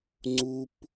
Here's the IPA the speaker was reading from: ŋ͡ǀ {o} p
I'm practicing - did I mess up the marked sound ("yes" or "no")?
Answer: yes